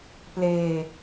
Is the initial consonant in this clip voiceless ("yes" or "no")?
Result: yes